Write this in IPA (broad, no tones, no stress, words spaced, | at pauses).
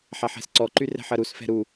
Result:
ħaħɛ̤sǀɔǃy rɛ̤ħɐɾusfɛ̤ ɾu